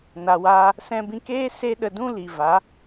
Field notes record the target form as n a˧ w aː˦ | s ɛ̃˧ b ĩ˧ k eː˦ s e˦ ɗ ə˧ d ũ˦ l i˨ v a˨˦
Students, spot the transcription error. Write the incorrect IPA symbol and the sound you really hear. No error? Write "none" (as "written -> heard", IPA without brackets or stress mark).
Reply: none